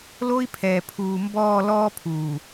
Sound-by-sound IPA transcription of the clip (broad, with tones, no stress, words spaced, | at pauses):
lo˦i̯pʰɛː˨ pʰuː˨mbɔː˦˨lɔː˦ pʰuː˨